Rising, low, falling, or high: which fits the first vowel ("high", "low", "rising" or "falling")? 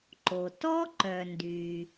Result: low